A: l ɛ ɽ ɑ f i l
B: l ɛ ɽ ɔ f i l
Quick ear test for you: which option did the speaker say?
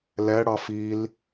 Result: A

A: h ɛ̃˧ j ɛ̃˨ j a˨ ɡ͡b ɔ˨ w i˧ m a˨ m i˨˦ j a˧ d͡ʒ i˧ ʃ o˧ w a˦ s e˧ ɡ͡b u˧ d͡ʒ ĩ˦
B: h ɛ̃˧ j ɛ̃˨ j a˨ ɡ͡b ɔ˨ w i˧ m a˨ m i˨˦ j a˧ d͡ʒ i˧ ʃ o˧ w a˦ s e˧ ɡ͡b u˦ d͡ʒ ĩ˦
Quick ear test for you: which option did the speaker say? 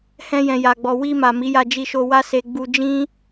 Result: A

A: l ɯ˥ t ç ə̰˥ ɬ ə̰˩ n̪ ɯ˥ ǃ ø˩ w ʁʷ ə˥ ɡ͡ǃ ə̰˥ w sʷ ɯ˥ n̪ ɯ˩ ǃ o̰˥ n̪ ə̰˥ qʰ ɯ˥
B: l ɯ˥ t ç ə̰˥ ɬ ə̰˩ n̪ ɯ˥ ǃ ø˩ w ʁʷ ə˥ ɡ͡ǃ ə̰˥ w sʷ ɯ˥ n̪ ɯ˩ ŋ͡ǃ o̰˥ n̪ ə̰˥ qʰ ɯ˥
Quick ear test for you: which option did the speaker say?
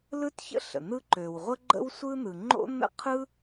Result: B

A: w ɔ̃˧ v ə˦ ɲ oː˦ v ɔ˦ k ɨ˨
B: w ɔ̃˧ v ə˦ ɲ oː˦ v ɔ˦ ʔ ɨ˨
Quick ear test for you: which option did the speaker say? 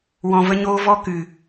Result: A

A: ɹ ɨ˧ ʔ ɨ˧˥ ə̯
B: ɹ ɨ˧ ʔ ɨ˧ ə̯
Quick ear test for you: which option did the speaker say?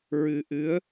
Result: A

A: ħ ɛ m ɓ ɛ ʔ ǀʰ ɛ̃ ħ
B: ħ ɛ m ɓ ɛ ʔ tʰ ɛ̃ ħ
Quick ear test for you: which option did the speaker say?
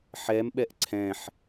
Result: A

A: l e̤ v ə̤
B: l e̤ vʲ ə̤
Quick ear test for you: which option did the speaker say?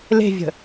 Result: B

